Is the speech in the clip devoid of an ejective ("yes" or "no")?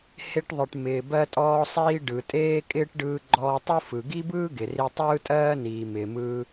no